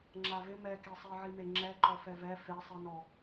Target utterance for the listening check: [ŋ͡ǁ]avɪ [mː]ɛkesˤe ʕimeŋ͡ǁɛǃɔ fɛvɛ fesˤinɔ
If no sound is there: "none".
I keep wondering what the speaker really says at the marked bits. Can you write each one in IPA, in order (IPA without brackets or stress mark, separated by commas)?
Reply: ŋ͡ǁ, m